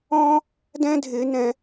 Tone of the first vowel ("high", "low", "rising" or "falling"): high